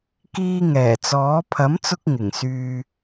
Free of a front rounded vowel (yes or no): no